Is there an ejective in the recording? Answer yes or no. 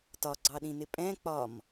yes